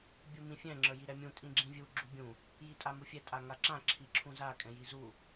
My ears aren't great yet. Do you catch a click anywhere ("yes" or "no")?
yes